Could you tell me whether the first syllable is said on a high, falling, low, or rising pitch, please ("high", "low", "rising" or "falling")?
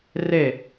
falling